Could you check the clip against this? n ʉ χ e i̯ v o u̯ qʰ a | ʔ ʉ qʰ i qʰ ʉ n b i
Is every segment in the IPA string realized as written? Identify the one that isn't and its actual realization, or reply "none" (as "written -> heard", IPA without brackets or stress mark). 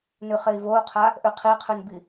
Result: none